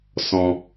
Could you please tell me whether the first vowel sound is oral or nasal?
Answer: nasal